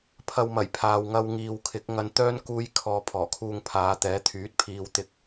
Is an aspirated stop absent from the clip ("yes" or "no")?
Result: no